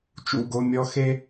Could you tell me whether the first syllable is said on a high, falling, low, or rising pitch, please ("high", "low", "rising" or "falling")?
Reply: falling